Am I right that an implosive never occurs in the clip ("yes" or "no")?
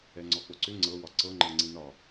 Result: yes